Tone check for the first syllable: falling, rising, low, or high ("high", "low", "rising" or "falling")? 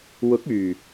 rising